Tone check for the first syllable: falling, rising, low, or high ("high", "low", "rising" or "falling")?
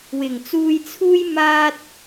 low